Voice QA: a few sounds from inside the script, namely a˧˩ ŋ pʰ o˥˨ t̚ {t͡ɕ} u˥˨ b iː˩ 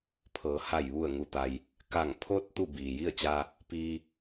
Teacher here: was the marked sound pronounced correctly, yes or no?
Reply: no